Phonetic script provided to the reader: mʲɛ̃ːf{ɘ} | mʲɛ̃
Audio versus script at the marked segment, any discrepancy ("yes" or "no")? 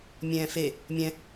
yes